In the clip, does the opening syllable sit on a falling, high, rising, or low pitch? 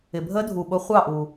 low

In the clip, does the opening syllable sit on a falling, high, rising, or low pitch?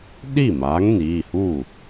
falling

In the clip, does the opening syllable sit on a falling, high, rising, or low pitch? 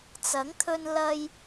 rising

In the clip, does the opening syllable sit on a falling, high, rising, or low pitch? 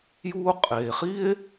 high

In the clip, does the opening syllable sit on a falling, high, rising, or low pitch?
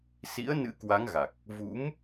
rising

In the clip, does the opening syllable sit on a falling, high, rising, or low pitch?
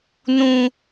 high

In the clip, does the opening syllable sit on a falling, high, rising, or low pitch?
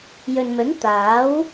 low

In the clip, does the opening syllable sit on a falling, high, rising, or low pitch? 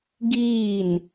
falling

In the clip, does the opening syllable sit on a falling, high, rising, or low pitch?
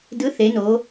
rising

